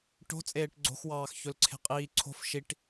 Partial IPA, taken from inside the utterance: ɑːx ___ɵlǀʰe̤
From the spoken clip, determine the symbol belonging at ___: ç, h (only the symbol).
ç